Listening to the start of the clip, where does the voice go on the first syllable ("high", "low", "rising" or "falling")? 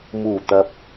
low